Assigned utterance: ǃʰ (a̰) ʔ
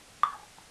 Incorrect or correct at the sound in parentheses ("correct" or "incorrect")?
correct